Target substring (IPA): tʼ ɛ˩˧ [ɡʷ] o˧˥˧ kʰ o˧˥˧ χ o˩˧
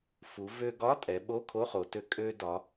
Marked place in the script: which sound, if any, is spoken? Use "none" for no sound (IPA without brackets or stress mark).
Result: ɓ